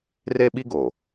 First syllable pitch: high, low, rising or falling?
high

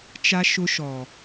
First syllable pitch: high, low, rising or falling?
high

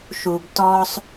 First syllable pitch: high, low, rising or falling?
low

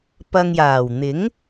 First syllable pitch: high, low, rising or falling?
low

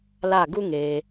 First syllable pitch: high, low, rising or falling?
falling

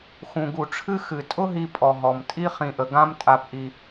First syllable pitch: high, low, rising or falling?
low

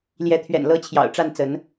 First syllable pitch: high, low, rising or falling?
rising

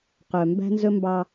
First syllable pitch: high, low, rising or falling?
low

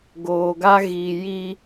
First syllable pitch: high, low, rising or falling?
low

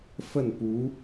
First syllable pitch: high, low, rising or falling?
falling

